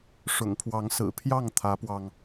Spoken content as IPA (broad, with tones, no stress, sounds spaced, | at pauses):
ʂ ʊ̰˨˩ ŋ pʰ w ɑ˨˦ ŋ s ɹ̩˨˩ pʰ j ɑ˥˨ ŋ t̪ʰ ä˨˦ p w ɑ˧ ŋ